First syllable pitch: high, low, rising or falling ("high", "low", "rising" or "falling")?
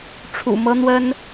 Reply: low